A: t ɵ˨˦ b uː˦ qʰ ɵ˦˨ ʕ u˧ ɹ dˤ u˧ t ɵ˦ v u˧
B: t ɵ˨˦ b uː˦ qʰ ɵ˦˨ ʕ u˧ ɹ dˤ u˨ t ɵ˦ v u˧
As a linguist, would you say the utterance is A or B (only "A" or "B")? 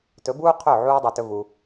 B